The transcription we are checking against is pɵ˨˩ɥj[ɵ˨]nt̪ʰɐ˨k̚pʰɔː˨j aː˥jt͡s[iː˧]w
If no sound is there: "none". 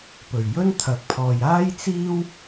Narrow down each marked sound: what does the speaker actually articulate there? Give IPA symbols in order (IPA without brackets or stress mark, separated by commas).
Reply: ɵ˥, iː˥